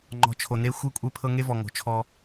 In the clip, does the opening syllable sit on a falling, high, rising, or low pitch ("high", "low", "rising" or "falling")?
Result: low